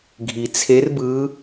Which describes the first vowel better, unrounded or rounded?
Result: unrounded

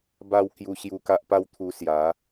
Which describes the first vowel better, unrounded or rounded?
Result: unrounded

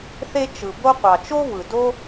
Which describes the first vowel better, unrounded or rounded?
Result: unrounded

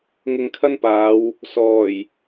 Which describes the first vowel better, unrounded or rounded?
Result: unrounded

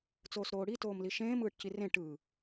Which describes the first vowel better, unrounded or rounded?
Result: rounded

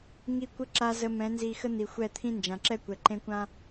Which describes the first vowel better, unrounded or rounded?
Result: unrounded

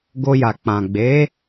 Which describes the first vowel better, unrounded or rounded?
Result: rounded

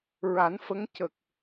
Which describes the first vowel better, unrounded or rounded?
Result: unrounded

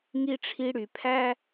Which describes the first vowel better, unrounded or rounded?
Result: unrounded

